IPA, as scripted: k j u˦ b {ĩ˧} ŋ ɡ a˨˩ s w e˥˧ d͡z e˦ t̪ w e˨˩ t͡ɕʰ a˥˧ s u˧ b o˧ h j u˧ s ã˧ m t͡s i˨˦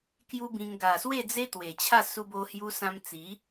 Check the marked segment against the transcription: correct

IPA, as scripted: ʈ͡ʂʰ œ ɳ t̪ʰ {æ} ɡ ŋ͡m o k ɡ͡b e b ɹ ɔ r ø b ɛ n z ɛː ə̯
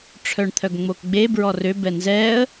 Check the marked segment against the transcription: incorrect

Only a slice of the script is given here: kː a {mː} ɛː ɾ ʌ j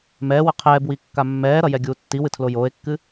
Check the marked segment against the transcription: correct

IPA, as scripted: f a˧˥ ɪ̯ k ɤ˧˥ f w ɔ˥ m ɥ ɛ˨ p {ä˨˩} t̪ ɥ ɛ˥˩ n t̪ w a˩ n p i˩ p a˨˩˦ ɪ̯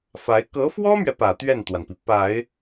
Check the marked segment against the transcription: correct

